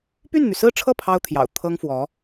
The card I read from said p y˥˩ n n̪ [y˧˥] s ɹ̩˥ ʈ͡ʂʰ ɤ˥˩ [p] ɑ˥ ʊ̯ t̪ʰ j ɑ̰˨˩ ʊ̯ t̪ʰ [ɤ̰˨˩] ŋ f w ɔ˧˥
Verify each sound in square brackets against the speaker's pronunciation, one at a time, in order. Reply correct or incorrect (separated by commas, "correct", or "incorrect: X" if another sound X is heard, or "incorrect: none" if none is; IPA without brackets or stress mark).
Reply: incorrect: y˩, incorrect: pʰ, incorrect: ɤ˥